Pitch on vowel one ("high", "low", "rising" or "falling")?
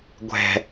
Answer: low